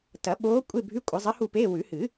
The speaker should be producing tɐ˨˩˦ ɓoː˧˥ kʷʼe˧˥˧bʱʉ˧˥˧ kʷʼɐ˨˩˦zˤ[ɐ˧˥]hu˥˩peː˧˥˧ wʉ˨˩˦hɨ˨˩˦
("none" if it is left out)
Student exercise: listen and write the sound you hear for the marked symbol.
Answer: ɐ˧˥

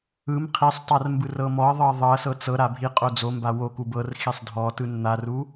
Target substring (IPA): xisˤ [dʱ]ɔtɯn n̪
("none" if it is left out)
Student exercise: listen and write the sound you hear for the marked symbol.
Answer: dʱ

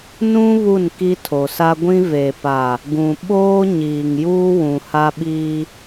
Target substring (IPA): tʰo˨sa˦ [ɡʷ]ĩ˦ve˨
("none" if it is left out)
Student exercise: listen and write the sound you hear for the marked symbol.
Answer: ɡʷ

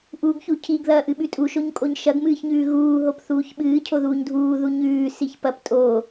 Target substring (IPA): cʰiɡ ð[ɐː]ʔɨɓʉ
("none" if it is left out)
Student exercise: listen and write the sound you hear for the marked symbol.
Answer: ɐː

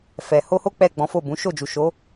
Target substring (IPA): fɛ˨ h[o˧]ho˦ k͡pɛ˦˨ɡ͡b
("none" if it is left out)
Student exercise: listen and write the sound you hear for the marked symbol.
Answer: o˧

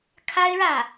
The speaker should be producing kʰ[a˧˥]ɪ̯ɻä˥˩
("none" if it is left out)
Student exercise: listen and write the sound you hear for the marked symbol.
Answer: a˥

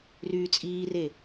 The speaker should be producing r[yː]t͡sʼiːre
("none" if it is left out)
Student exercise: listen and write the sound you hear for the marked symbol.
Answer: yː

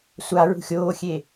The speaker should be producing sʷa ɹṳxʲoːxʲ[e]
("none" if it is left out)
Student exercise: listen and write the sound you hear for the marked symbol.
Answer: e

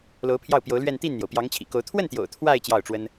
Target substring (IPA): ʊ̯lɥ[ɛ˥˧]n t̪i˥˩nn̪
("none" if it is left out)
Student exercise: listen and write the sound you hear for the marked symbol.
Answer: ɛ˥˧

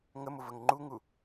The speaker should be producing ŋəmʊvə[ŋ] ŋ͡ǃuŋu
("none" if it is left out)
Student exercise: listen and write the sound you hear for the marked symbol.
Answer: ŋ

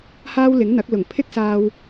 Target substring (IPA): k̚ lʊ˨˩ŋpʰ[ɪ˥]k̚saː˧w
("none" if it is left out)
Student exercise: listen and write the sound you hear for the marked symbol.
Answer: ɪ˥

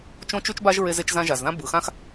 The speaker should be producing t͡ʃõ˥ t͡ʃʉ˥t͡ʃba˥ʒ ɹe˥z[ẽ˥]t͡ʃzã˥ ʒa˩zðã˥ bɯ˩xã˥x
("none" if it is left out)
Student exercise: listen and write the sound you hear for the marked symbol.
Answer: e˥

